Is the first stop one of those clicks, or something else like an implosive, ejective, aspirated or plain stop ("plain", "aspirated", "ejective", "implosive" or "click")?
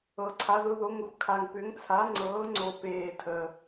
click